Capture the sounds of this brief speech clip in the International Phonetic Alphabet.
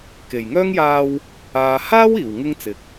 k e˨˩ j ŋ œː˥ ŋ j aː˧ w | aː˨ h aː˥ w iː˨˩ w ŋ ɪ˥ ŋ t͡s ɪ˨ k̚

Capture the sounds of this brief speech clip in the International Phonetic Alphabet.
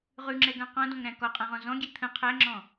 ʁ ʉ ŋ͡ǁ ɛ ɡ ã q ɔ̃ d ɔ̃ ŋ ɾ æ̃ k ɔ qʼ ã ʁ ɔ̃ z ɔ̃ ɡʲ e t̪ʰ ə̃ qʰ æ ŋ͡ǁ ɔ̃

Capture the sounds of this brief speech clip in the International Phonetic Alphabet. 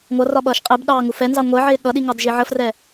ŋʷ ʌ r ɒ ɓ ʌː ʃ qʼ ɪ b ɗ ɑː ŋ u f ɛ n z ɑ ŋʷ ɜ ʕ ɪː ɠ ʌ ɗ i ŋ ɑ d ʒ i ʕ ə f r ɛ

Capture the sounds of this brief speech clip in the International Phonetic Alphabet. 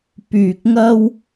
p yː˨ k̚ ŋ ɐ˧ w

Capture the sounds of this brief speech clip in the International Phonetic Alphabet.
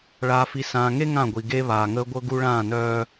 ɭ aː˨ f i˨ s ãː˨ ŋ e˦ ŋ ã˦˨ ɡʷ i˨ ɡ e˦ β aː˨ ŋ əː˦ ɡʷ ɤ˦ ɡ u˦ ɭ ãː˦˨ n œː˦

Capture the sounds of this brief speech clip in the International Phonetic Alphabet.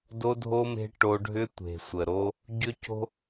d o˧ dʱ o˧ m e̤˧ ʈ o˧ ɖʱ ʏ˧ tʷ e̤˨ sʷ ə˨ ɾ o˧ | ɟ ʏ˦ c o̤˦

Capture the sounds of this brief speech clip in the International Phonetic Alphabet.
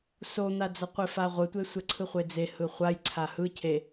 s o n̪ a d͡z ɐ qʷ e f a ʁʷ ɯ tʷ e sʷ ɛ ǀʰ ɯ χʷ e d͡z e h ɯ χʷ a j ǀʰ a h ɯ cʰ e

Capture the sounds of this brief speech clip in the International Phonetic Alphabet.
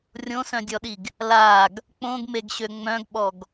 rʲ õ s œ̃ dʲ ɔ ɗ i ɡ | l a ɡ | k͡p õ ɡ m e ɡ ɕ ø ŋ͡m œ̃ ɡ ɓ ɔ ɡ

